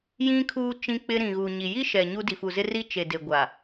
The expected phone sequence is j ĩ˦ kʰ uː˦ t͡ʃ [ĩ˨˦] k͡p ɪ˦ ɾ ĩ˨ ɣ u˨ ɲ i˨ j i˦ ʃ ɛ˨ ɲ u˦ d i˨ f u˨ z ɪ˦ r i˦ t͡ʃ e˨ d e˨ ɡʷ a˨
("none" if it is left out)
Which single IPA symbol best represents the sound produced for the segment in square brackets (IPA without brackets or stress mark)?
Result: ĩ˦